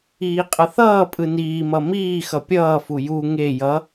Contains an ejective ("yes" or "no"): yes